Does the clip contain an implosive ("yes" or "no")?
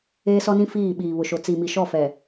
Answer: yes